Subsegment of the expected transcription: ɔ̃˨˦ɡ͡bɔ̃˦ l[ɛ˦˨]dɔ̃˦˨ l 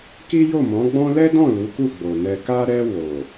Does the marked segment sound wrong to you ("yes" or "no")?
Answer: yes